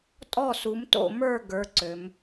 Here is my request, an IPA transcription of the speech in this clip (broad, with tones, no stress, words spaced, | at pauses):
tʼɔ˥˨su˨˥mto̰˥˨mə˞˥˨ ɡə˞˨˥ ǀø˩˧m